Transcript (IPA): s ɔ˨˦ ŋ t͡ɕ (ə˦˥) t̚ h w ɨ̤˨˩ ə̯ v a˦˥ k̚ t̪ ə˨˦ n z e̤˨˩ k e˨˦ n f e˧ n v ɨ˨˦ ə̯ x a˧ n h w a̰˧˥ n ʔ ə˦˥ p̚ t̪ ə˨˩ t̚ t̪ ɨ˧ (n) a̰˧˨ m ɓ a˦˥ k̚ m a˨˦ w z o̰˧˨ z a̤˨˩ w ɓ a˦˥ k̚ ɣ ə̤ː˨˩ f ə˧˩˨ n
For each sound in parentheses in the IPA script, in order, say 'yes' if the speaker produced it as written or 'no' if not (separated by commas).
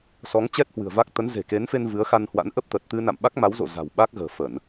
no, yes